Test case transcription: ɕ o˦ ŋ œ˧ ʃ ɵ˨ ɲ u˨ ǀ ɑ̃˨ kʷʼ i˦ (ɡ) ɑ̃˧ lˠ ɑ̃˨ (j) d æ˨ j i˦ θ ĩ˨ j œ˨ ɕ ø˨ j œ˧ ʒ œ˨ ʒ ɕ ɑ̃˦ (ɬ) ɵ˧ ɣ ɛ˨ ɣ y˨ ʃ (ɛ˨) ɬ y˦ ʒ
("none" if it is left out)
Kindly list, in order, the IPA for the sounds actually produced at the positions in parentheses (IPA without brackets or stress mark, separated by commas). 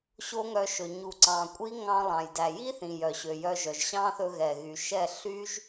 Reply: ŋ, j, θ, ɛ˦˨